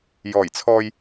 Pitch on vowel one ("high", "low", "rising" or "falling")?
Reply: low